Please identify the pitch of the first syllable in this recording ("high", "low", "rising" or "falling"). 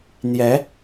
rising